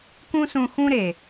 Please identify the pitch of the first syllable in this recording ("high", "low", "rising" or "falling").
high